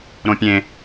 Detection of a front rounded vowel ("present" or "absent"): absent